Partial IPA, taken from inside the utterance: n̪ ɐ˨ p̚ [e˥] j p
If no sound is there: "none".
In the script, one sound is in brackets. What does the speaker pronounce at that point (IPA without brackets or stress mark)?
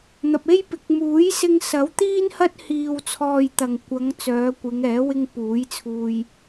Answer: e˥